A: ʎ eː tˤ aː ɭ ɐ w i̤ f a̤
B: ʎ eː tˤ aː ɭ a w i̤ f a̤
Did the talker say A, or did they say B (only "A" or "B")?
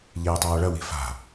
A